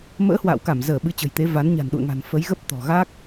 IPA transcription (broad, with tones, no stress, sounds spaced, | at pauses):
m ə̰ː˧˥ h w a̰ː˧˨ w k a˧˩ m z əː˧˩ ɓ ɨ˨˦ t͡ɕ ə̤˨˩ j t̪ e˨˦ v a˨˦ n ɲ a̤˨˩ n ɗ ṵ˧˨ ə̯ ŋ a̤˨˩ n f ə˨˦ j ɣ ə˦˥ p̚ t̪ ɔ̤˨˩ ɣ a˦˥ k̚